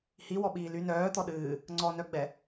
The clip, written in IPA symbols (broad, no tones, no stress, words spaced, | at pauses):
hiwɔɓiː ly nœːt̪ɔ ɗɨː | ŋ͡ǀɔnœɡ͡bɛ